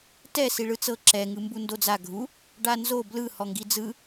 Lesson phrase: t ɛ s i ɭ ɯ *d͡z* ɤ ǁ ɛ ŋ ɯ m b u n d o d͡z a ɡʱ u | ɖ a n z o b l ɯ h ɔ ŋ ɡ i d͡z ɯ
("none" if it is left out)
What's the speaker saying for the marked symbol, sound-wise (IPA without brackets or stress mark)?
t͡s